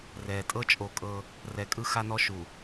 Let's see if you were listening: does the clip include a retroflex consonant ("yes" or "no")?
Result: no